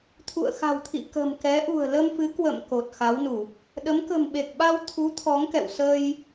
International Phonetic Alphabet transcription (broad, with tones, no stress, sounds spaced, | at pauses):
t̪ʰ ṵ˧˨ ə̯ x a̤˨˩ w t̪ʰ ḭ˧˨ k ə̤˨˩ m k ɛ˨˦ ʔ ṳ˨˩ ə̯ l ə˧ m f ɨ˨˦ k w ə̰˧˨ m k o˨˩ t̚ x a˨˦ w n u˧˩˨ | ɗ ə˨˦ m k ə̤˨˩ m ɓ e˨˩ k̚ ɓ a˧ w t̪ʰ u˨˦ t̪ʰ ɔ˨˦ ŋ k ɛ̰˧˨ w s ə˧ j